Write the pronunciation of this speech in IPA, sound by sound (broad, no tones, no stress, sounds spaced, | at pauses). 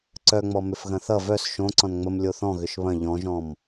ǀ œ ŋ͡m ɔ m ʏ f ɣ ɐ̃ θ ʌ v œ s ʃ õ ǀ ɔ̃ n ŋ͡m ə m lʲ o θ ɔ̃ ɣ ʏ ʃ β ɐ̃ ʎ ɔ̃ ʒ ɔ̃ m